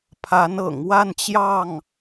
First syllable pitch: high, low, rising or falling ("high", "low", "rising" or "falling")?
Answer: rising